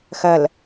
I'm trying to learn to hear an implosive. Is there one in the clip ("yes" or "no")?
no